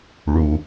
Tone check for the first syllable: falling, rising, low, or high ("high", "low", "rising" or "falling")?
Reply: low